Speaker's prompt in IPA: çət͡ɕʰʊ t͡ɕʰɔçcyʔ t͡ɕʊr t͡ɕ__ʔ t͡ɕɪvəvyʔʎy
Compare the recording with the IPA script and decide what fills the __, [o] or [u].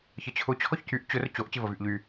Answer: o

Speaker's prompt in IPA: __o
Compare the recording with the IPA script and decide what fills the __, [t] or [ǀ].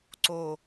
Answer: ǀ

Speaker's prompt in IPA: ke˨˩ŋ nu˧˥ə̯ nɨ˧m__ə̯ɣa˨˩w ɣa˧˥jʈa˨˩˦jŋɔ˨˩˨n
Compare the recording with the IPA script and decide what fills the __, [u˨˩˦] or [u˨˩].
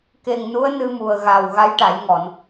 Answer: u˨˩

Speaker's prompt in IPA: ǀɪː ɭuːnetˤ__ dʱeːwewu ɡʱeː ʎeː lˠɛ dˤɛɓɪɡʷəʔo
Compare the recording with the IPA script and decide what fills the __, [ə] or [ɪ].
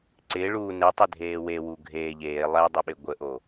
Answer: ɪ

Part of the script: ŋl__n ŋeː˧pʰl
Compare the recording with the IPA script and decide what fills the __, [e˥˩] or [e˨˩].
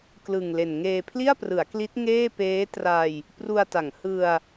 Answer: e˨˩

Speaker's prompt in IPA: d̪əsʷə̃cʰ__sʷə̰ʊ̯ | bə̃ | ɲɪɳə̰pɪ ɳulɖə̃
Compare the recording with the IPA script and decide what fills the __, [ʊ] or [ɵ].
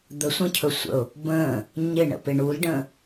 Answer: ɵ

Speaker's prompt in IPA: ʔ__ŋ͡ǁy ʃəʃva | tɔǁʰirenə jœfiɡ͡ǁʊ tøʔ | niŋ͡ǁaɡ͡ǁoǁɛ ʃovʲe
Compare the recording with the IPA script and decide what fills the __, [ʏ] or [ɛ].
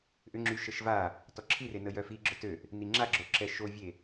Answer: ʏ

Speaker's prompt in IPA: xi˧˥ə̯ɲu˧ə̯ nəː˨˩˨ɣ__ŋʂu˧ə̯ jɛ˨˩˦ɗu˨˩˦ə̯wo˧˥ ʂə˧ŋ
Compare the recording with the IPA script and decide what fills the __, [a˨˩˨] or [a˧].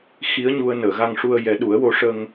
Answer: a˧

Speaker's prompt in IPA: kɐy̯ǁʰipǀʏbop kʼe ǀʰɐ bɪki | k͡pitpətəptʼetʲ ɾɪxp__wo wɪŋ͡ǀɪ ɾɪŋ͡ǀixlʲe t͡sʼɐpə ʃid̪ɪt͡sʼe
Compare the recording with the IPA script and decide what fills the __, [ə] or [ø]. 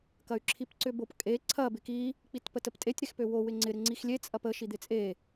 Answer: ø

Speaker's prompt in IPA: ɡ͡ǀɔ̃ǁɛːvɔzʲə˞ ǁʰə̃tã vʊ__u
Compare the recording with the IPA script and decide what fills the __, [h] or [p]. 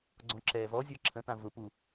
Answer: p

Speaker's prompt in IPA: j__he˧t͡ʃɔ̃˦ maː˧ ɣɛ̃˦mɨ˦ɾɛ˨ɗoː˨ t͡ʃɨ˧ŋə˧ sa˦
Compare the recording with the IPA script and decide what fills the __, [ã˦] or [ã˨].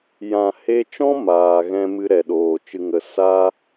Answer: ã˨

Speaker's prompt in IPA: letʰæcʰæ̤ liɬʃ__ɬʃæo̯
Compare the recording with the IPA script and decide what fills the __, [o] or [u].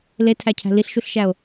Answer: u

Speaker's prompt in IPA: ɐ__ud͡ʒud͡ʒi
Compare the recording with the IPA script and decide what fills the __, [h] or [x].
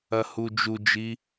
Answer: h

